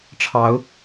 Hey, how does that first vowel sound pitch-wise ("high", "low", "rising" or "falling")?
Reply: rising